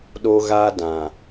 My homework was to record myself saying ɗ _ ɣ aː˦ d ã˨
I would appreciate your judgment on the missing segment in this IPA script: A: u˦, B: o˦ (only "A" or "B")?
B